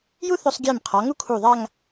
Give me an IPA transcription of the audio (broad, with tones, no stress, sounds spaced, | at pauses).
j u˥ θ ʊ˧ sˤ ɡʲ ɛ˧˩ m qʰ ɔ˩˧ ŋ u˥ kʰ u˧˩ ðˤ a˥˧ ŋ